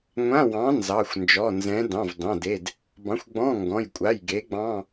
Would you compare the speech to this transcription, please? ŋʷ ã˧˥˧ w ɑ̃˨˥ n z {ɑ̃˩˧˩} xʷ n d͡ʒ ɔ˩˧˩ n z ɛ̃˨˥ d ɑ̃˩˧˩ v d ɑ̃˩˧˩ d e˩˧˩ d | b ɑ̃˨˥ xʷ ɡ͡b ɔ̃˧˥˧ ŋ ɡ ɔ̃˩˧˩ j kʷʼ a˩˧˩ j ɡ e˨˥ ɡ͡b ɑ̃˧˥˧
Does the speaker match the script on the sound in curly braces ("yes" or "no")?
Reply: no